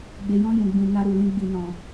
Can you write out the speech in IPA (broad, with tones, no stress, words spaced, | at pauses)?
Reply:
ɡ͡be˨jɔ̃˧ jũ˨ɡ͡bĩ˨ na˧ɾu˨lĩ˧ɡ͡bi˨ nɔ̃˨